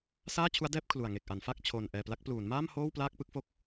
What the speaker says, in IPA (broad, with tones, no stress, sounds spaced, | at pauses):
s aː˥˩ t͡ɕʰ u˦˥ a̯ d ɛː˥˩ p̚ kʰ l u˨˩ a̯ ŋ e˨˩ k̚ ʔ a˩˦ n f a˥˩ k̚ t͡ɕʰ oː˧ n ʔ ɛː˧ p l a˦˥ k̚ p l uː˩˦ n m aː˥˩ m h oː˥˩ w p l aː˥˩ k̚ p ɯ˥˩ k̚ f o˥˩ k̚